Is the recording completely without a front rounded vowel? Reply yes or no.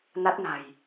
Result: yes